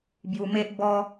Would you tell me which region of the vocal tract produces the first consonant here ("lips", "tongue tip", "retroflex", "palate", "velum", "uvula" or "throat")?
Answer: lips